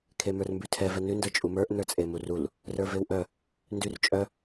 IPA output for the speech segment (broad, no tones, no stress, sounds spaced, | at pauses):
kʰ e m ə˞ r m b ʉ tʰ ɛ v ɛ n ʉ n d ə˞ t͡ʃʼ u m ə˞ ʔ n ə˞ t͡sʼ e m u r u l | r ə˞ v e w ʔ œ | n d ʉ r t͡ʃʼ œ